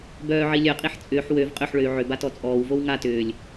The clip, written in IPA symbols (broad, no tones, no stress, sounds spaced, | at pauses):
b œː ʕ i lʲ œ qʼ i ħ t͡sʼ ʏː ħ w ø v qʼ ø ħ ɭ ø y̯ ʕ ʏ b a t ɔ t͡sʼ ɔː w v o w ŋ a t ʏː lʲ